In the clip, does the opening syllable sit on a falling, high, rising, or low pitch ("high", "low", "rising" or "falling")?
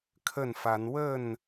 falling